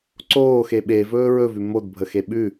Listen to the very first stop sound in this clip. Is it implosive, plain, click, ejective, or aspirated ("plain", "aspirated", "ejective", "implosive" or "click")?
click